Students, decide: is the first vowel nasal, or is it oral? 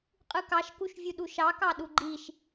oral